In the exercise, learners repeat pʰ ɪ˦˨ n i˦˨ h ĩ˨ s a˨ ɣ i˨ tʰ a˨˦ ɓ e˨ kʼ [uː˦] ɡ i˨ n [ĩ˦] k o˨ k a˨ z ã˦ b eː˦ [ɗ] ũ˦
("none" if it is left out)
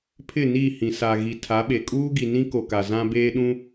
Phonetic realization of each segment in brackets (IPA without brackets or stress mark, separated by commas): uː˦, ĩ˦, ɗ